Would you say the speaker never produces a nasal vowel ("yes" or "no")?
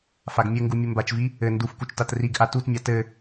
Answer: yes